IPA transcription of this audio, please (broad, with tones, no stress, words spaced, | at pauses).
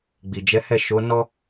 ɡ͡bi˨d͡ʒɛ˨˦hɛ˦˨ ʃo˨˦nɔ˦